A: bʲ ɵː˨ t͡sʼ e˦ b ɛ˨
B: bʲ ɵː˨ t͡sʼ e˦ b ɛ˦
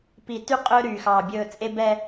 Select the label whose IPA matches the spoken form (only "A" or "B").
B